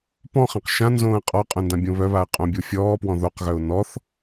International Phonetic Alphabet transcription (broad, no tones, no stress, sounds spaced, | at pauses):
p ɔ̃ χ ẽ q ʃ ã n z õː ə̯ qʼ ɔ qʼ œ̃ n d ã bʲ õ β œ β a ə̯ qʼ õ bʲ o fʲ ɔː p w ɔ̃ ð o q ɣ œ ʊ̯ n ɔ θ